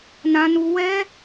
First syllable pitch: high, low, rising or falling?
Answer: high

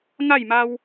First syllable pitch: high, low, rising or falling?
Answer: falling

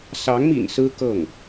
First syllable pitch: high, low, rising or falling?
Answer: rising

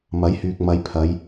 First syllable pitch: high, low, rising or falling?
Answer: rising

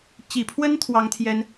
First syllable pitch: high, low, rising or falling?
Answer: low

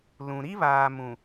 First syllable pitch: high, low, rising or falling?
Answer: low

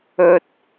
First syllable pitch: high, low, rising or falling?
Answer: high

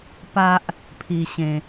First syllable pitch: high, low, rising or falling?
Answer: high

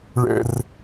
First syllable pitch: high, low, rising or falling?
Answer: high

